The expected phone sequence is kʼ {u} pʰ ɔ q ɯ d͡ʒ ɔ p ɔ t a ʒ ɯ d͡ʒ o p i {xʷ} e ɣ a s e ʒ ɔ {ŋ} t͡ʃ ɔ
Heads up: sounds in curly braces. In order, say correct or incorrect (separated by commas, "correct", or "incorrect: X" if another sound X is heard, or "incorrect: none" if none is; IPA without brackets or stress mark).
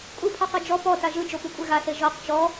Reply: correct, incorrect: kʷʼ, incorrect: q